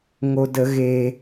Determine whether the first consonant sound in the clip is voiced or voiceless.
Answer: voiced